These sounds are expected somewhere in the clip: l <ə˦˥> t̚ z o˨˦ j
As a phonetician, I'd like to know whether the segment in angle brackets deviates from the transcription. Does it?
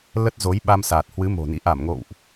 no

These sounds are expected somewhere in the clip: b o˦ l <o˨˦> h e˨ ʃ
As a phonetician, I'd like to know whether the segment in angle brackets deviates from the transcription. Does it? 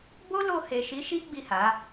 yes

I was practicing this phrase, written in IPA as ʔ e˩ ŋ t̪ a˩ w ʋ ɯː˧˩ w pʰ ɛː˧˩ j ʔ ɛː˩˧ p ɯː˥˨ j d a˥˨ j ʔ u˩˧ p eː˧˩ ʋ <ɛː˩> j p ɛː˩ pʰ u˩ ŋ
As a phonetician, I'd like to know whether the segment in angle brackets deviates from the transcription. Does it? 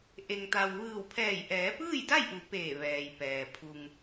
no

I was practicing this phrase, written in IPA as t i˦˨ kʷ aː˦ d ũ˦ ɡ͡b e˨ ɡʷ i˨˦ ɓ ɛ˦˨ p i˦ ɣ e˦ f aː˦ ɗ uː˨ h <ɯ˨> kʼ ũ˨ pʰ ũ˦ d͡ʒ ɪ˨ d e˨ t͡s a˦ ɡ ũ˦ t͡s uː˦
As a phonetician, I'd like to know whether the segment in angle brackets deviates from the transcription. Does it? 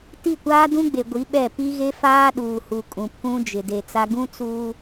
yes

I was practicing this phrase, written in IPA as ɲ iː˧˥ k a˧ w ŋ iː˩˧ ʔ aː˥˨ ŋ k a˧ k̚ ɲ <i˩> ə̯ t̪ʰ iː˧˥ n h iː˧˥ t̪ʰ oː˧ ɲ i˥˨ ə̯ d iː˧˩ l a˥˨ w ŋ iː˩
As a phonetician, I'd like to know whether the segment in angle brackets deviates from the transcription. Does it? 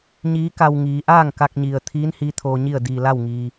no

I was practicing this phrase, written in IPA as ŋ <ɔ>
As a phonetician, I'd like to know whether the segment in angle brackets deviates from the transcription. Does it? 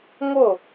yes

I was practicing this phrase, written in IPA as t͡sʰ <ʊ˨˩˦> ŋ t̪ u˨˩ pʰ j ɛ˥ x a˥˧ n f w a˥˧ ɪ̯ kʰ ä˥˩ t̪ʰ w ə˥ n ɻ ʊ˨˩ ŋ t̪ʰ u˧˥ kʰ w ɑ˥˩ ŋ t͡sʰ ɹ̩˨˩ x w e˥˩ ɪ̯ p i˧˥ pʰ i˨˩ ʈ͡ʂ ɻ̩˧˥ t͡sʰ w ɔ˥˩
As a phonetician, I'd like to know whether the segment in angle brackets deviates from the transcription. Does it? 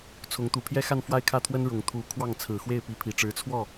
yes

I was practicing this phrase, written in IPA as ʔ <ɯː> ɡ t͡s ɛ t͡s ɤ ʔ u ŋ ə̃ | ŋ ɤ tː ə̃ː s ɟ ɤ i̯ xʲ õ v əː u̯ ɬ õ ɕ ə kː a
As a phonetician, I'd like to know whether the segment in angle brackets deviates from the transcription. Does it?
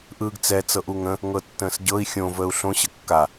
no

